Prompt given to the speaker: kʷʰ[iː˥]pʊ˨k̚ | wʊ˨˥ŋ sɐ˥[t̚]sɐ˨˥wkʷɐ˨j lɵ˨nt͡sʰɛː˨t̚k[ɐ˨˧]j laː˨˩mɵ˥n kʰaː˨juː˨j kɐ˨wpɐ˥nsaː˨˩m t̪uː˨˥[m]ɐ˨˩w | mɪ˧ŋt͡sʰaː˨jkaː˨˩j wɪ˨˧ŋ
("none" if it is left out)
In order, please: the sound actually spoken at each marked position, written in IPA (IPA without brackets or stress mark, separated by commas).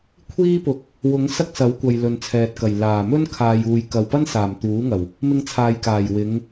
iː˥, k̚, ɐ˨˩, ŋ